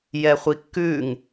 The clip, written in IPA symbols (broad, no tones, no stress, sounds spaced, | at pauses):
j ɛ χʷ i kː ʉ ŋ